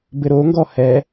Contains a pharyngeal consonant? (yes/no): no